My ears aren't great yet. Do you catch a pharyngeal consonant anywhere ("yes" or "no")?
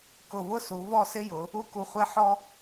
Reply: yes